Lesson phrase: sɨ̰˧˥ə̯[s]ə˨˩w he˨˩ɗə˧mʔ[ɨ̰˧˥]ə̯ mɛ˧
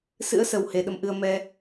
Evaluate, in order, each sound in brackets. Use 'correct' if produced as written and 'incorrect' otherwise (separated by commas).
correct, incorrect